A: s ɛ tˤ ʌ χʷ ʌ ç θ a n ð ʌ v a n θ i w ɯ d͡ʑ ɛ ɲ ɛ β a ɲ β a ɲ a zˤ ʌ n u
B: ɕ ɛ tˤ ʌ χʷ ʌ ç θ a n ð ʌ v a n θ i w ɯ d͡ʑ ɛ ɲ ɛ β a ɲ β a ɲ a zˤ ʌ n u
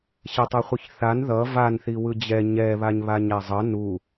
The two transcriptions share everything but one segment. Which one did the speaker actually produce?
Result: B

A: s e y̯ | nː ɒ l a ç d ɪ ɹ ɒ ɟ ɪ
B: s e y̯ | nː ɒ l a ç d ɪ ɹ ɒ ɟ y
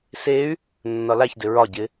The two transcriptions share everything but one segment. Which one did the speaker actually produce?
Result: A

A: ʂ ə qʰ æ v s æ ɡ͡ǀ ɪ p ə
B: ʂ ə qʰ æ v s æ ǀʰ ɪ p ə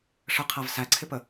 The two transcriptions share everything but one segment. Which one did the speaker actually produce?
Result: B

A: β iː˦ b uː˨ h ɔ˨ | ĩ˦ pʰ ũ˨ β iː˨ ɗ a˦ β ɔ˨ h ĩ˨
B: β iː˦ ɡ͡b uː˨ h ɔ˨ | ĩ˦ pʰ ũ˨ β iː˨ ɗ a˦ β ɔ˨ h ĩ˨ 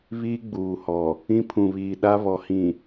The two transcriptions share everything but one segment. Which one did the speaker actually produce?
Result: B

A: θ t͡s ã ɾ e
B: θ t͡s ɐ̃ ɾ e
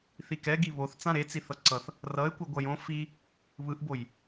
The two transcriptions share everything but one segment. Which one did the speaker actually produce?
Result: A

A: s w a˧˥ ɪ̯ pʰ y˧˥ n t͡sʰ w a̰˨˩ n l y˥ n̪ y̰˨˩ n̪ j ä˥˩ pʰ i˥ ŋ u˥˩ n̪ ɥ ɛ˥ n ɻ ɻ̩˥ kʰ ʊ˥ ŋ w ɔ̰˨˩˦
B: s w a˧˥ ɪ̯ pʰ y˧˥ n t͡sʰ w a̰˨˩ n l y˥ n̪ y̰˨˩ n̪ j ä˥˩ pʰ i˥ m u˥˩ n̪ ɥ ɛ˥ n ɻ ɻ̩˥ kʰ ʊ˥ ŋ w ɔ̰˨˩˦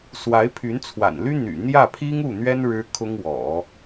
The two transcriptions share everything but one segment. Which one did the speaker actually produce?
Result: A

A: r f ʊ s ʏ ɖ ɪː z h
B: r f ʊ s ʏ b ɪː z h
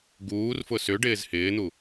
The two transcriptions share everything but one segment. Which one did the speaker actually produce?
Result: A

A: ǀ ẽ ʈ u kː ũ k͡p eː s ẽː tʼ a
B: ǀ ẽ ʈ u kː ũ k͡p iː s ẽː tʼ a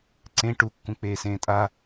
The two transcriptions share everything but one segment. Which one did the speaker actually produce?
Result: A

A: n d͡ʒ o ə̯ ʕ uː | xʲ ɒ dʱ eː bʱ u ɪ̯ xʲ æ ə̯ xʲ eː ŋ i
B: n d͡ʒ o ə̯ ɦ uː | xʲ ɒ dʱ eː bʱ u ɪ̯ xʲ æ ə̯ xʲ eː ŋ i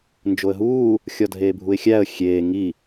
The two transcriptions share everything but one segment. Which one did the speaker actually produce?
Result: B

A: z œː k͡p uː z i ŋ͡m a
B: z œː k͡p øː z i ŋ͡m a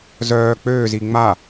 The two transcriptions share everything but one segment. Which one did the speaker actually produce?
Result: B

